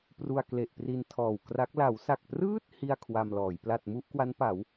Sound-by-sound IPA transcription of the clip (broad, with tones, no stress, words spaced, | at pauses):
pru˧a̯kle˨˩ʔpri˧n tʰɔː˨˩wkra˦˥k̚ la˩˦wsa˨˩k̚prɯː˥˩t̚ hi˥˩a̯kʰwa˧mlɔː˩˦j pla˨˩t̚mu˥˩ʔkwa˦˥npa˩˦w